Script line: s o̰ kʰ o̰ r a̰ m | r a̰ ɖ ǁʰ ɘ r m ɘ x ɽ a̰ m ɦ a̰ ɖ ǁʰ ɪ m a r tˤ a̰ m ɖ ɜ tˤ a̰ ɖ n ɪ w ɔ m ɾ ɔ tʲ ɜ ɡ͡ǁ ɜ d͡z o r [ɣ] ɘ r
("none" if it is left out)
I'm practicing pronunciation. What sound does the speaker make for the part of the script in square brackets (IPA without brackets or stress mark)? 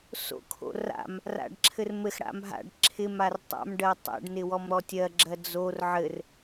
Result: ʕ